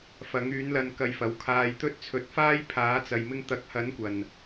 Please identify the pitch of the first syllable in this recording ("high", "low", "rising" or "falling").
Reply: rising